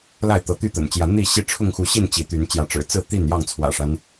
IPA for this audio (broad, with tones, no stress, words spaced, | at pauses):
la˥˨ɪ̯t̪ɤ˨˦t̪y˥˨t̪ə̰˨˩n t͡ɕjä˨˦n̪i˥˨ɕi˦ ʈ͡ʂʰʊ˥˨ŋxu˨˦ɕi˥˨n t͡ɕi˨˦t̪y˨˦n t͡ɕjä˨˦ʈ͡ʂɻ̩˨˩ t͡sɹ̩˥˨ t̪i˥˨n jɑ˥˨ŋt͡sʰwä̰˨˩ʂa˦n